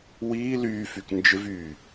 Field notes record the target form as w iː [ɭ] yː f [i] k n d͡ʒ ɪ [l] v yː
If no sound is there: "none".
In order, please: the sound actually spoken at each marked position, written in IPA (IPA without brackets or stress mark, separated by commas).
l, y, none